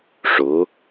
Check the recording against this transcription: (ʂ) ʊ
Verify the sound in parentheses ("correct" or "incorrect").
correct